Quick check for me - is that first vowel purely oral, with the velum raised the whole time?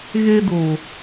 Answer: yes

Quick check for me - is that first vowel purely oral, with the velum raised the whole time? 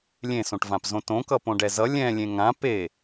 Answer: no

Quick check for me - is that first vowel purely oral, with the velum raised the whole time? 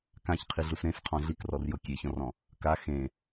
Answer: no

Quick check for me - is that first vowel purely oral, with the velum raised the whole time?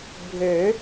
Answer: yes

